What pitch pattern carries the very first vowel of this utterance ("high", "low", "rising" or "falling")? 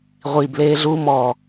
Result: low